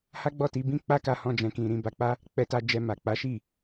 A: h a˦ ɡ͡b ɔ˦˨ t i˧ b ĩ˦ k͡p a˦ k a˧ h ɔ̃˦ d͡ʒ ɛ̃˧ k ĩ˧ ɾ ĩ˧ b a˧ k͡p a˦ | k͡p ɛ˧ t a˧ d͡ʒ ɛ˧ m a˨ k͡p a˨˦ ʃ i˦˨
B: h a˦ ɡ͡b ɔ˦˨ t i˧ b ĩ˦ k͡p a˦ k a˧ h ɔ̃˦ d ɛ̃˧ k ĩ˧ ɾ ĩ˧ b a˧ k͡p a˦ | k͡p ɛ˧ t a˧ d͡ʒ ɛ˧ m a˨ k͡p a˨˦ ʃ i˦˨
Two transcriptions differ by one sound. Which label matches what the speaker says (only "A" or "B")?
A